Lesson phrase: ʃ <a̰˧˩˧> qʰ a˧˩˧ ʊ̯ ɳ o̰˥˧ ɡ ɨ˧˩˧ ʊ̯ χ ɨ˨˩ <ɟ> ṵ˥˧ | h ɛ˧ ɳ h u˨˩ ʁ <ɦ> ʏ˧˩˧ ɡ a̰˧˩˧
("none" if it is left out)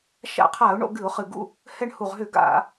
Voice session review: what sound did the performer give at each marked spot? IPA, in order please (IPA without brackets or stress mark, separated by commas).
a̰˧˩˧, ɡ, ɦ